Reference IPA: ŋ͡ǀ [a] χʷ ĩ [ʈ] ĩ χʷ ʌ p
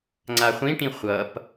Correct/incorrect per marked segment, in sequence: correct, correct

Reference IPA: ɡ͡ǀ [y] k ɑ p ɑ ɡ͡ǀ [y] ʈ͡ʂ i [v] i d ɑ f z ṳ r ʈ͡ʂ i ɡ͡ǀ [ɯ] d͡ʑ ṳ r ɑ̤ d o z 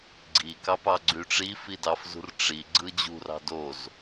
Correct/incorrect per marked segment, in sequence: incorrect: i, correct, incorrect: f, correct

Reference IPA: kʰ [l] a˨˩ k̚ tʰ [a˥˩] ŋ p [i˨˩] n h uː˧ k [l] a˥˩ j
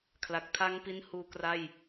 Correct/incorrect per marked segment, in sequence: correct, incorrect: a˦˥, incorrect: i˦˥, incorrect: r

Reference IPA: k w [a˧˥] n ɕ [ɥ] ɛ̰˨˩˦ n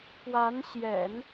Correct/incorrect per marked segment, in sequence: correct, incorrect: j

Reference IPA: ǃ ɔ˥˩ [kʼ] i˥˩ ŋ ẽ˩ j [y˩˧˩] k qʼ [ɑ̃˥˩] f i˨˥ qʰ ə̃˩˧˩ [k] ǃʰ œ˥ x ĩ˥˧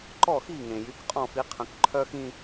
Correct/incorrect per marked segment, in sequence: incorrect: x, correct, incorrect: ɔ̃˥˩, correct

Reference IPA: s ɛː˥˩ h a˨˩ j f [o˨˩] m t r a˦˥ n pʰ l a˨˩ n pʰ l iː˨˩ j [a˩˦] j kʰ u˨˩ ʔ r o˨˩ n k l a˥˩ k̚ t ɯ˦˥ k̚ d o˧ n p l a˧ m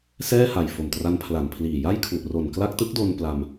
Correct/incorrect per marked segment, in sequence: correct, incorrect: a˥˩

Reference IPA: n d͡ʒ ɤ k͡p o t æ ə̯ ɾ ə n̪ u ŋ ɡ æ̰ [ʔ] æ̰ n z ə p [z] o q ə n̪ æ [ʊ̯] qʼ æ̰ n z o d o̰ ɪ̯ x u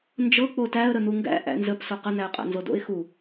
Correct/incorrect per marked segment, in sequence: correct, incorrect: s, correct

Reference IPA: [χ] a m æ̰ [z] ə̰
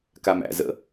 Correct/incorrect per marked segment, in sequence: incorrect: k, correct

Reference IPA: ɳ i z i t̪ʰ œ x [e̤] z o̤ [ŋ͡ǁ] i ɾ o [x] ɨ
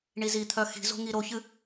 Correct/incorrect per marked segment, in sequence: incorrect: i̤, incorrect: ŋ, incorrect: ç

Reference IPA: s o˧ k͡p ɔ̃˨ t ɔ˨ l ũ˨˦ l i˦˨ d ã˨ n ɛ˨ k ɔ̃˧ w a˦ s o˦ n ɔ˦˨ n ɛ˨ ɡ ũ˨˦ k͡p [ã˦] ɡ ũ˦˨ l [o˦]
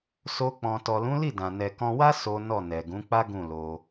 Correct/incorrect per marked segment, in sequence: incorrect: a˦, incorrect: o˧

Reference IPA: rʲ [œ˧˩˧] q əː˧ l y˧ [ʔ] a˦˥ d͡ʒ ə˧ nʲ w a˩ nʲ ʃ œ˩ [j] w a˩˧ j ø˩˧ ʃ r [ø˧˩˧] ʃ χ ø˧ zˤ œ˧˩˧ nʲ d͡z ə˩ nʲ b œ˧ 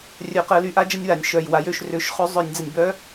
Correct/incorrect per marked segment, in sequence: correct, correct, correct, correct

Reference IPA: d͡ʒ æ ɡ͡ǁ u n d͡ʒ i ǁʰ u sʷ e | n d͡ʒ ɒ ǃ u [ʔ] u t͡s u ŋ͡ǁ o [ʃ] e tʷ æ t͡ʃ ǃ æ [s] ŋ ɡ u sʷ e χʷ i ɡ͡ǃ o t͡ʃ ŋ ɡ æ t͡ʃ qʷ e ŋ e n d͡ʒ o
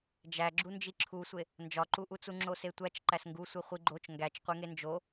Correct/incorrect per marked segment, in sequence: correct, incorrect: s, correct

